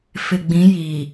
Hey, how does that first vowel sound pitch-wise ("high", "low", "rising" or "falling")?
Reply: low